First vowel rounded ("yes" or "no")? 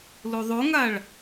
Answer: yes